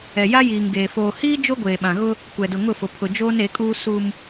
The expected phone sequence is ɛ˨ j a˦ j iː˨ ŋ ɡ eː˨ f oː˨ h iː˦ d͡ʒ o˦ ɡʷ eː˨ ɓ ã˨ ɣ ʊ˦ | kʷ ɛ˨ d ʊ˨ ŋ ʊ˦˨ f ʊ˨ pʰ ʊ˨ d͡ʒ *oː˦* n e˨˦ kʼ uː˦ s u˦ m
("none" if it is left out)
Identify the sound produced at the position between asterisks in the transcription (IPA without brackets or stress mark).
oː˦